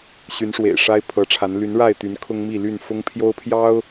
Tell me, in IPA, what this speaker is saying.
ɕ y˨˦ n ʂ w ḛ˨˩ ɪ̯ ʂ a˦ ɪ̯ pʰ ɤ˨˦ ʈ͡ʂʰ a˨˦ n l y˨˦ n ɻ a˥˨ ɪ̯ t̪ y˨˦ n kʰ ʊ˦ ŋ m i˥˨ l y˥˨ n f ʊ˦ ŋ pʰ j o˦ ʊ̯ pʰ j ɑ˦ ʊ̯

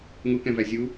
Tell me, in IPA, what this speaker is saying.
ŋ u k ɛ̃ v æ zʲ u

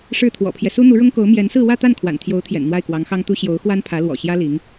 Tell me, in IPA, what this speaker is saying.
ʂ ɻ̩˥˩ t̪ʰ w ɔ̰˨˩ pʰ j ɛ˦ s u˥ n̪ u˧˥ ɻ ʊ˥ ŋ k o˧˥ ʊ̯ m j ɛ˧˥ n s ɹ̩˥˧ w ä˥˧ t̪ a˥˩ n kʰ w a̰˨˩ n t̪ʰ j o˧˥ ʊ̯ t̪ʰ j ɛ̰˨˩ n n̪ w a˥˩ ɪ̯ k w ɑ˧˥ ŋ x ɑ˥ ŋ t̪ u˥ ɕ j o˧˥ ʊ̯ x w a˥ n pʰ ä˧˥ l w ɔ̰˨˩ ɕ j ä˥ l i˧˥ ŋ

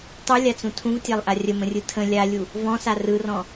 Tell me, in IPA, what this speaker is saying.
tˤ ɯ lʲ a t͡s ũ tʰ ũ v tʲ a lˠ ʔ a rʲ ə m ə̃ rʲ ɯ tʰ ə̃ lʲ a lʲ u | v ɔ̃ s a r ɯ r ɔ̃

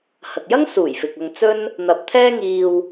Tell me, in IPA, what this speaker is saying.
h ɐ˨ k̚ j ɐ˥ ŋ s uː˨˩ j f ɪ˨ k̚ ɐ˧ ŋ t͡s ɵ˥ n | n̪ ɐ˧ p̚ t̪ʰ ɛː˥ ŋ iː˧ w

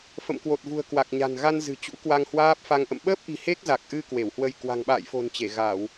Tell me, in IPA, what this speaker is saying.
f ə̰˧˨ m k w o˨˩ t̚ v ṳ˨˩ ə̯ k w a˨˩ k̚ ɲ a̤˨˩ n ɣ a˧ n z ɨ̤˨˩ t͡ɕ ṵ˧˥ k w a˧ ŋ h w aː˦˥ p̚ f a˧ ŋ ʔ ə̰˧˨ m ɓ əː˦˥ p̚ ʔ i̤˨˩ h e˦˥ k̚ z a˨˩ k̚ ʔ ɨ˧ k w e˧˩ w h w ə˧ j k w a̤˨˩ ŋ ɓ a̰ː˧˨ j f o̤˨˩ n t͡ɕ e˧˩ ɣ a˧˩˨ w

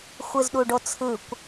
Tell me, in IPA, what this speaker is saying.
xʷ ɯ z ɗ u ɖ o t͡sʰ ɯ kʷ

